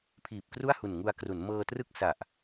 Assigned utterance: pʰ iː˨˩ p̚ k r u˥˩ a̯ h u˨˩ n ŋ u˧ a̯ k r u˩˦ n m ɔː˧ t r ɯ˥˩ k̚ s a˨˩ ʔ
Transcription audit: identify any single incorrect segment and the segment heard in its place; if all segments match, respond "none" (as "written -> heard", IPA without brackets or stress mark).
ɔː˧ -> ɤː˧